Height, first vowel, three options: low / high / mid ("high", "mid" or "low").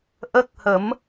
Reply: mid